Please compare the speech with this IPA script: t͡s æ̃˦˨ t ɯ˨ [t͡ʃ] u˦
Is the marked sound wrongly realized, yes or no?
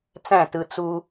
yes